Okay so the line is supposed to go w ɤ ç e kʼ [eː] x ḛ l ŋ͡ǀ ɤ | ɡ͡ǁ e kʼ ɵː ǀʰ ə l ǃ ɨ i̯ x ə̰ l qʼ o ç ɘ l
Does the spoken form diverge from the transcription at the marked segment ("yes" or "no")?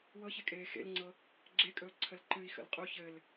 no